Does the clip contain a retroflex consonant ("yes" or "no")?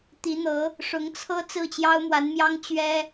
yes